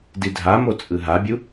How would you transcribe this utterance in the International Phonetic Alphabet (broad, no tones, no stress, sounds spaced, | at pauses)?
d i dʱ a m o t͡sʼ ɯ ɦ a bʲ u